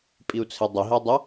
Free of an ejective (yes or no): no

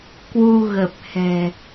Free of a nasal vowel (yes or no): yes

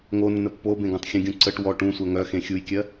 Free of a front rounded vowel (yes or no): no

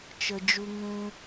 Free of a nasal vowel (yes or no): no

